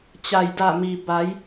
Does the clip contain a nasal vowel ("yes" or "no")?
no